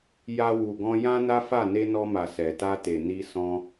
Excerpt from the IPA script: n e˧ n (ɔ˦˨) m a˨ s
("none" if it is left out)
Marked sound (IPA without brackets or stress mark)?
ɔ˧